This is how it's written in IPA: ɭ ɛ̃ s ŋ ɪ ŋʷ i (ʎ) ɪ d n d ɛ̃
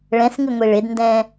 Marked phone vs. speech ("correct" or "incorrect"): incorrect